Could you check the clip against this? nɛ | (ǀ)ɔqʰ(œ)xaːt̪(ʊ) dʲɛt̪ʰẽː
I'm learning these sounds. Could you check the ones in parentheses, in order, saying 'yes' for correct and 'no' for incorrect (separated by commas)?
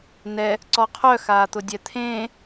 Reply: yes, yes, yes